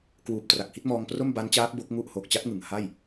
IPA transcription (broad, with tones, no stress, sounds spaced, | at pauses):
k w uː˨˩ p̚ t r a˨˩ k̚ h i˥˩ t̚ m ɔː˧ ŋ p r o˥˩ m b a˦˥ n t͡ɕ aː˦˥ k̚ b o˦˥ k̚ ŋ u˥˩ ʔ h o˨˩ k̚ t͡ɕ a˦˥ t̚ ŋ ɯ˩˦ ŋ h a˥˩ j